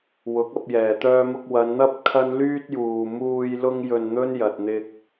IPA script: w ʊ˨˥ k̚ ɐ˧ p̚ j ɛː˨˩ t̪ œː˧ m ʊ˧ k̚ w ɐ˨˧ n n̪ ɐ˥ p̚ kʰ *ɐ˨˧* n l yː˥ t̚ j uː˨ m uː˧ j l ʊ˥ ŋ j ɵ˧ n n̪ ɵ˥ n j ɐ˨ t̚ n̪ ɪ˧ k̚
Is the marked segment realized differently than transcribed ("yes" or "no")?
yes